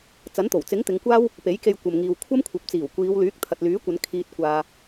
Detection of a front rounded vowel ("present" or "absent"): present